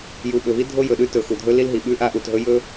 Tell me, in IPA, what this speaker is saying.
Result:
j u˨ ɓ ɵ˨ v i˦ dʱ o˦ j ɵ˨ ɗ ʉ˦ t ɵ˨ x u˨ dʱ ɵ˦ l i˦ l ɦ i˨ ɓ ʉ˦ ʔ a˦ ʔ u˨ t ɦ ɵ˦ j ɵ˦

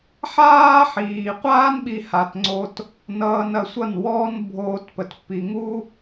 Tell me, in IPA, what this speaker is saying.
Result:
ħ aː˦ ħ iː˨ qʷ aː˦ n ɓ i˧ h a˨ t ŋ͡ǀ o˧ t | n ʌː˧ n ɐ˨˦ sʷ ʌ˦˨ n w ɔː˦ n bʱ oː˧ t p ə˨ t p i˨ ŋ u˦

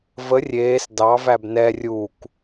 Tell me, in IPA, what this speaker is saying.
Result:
v ə rʲ eː s d ɑ v æ b n ɛ rʲ u k

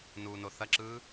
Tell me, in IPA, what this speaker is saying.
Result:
n uː n o θ ɐ ǁ ɯː

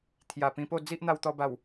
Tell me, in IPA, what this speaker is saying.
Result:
t̪ʰ j a˨˩ p ĩ˧ p o˥˧ d͡z i˦ ʔ n̪ a˧ w t̪ ɔ˧ b a˨˩ w

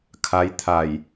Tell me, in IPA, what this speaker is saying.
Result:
kʰ a˧˥ j t̪ʰ a˧˩ j

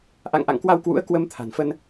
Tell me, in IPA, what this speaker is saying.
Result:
ʔ a̰˧˨ ŋ ʔ a̰˧˨ ŋ k w a˧ w k w ṵ˧˥ ə̯ k w ə˧ m t̪ʰ a̤˨˩ n f ə˧ n

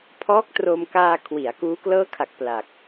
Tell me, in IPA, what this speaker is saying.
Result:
pʰ ɔː˦˥ k̚ t r o˧ m k aː˧ kʰ w i˩˦ a̯ k uː˦˥ k l ɤː˦˥ kʰ a˨˩ k̚ p l a˨˩ k̚

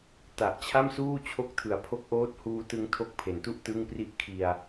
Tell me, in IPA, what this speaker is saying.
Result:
t a˨˩ ʔ t͡ɕʰ a˥˩ m s uː˥˩ t͡ɕʰ o˥˩ k̚ tʰ ɯ˩˦ a̯ pʰ o˦˥ k̚ ʔ oː˦˥ t̚ h uː˧ t ɯ˧ ŋ tʰ o˦˥ k̚ pʰ e˨˩ n t u˥˩ ʔ t ɯ˥˩ ŋ p r i˦˥ ʔ kʰ i˧ a̯

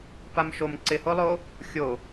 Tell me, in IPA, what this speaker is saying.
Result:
p a m ʃ o m ǀ ɪ h o lˠ o | xʲ o

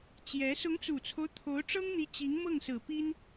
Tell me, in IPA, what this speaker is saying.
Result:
t͡ɕ j ɛ˧˥ s ʊ˧˥ ŋ t͡s u˨˩ t͡sʰ o˦ ʊ̯ t̪ʰ o˧˥ ʊ̯ ʈ͡ʂ ɤ˥ ŋ n̪ i˧˥ t͡ɕ i˧˥ ŋ m ɤ˥˩ ŋ s ɹ̩˨˩ p i˥ n

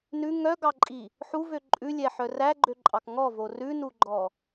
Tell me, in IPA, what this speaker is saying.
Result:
n ʉ ŋ œ ɡ ɑ ǃʼ i | ħ u v ø ǃʼ ʉ lʲ ɛ ħ œ r æ ɡ͡ǃ ø ǃʼ ɑ k ŋ ɔ v o r ʉ n u ɡ͡ǃ ɔ

